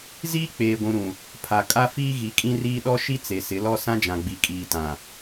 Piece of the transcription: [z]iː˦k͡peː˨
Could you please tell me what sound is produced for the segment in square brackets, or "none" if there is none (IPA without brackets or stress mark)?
z